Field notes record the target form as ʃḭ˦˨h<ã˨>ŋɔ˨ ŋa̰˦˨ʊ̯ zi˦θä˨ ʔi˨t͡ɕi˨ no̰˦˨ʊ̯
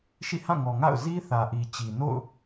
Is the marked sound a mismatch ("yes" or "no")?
yes